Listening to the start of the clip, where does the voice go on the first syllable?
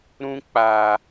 high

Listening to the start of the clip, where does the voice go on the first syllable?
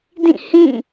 falling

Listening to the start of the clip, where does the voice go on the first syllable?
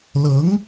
rising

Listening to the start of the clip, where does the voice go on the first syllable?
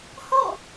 falling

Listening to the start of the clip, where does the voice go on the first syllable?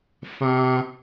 high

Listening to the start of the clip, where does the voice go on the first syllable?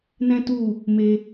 high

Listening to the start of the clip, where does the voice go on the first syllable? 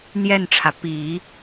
falling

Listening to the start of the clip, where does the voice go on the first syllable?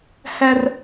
high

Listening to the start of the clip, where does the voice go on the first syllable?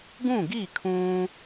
falling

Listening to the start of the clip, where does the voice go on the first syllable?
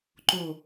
falling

